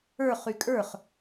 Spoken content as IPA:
ə˞ χ y kʼ ə˞ χ

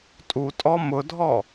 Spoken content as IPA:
tʼ u tʼ ɔ m ʊ dʱ ɔ

